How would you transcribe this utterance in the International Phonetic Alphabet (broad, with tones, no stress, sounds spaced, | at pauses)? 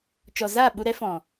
t͡ʃ ɔ˨ z aː˦˨ ɓ u˧ ɾ ɛ˦ f ɔ̃˨